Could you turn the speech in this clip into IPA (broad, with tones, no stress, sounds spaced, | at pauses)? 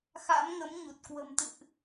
x a̰˧˥ m ŋ ə˨˦ m ɲ u˨˩ t̚ k w ə̤˨˩ m t̪ ɨ̰˧˨ ʔ